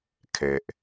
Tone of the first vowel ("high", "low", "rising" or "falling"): low